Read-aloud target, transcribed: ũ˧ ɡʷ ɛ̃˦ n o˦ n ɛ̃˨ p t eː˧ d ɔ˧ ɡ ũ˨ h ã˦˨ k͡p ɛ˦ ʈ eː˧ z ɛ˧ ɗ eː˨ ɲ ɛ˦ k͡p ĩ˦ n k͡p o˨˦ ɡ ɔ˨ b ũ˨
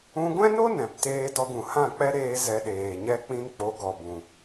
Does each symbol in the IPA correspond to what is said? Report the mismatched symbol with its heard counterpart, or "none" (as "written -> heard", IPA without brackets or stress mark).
ʈ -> ɾ